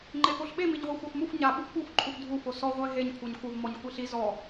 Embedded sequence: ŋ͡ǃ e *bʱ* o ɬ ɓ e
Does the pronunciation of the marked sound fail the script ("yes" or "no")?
yes